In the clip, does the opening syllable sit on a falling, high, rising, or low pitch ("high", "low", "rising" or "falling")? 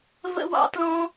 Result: high